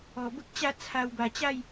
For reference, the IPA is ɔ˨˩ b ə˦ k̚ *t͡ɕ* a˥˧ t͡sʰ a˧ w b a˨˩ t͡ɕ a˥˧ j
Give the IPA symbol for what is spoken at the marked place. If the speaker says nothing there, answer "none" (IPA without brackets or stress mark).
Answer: t͡ɕ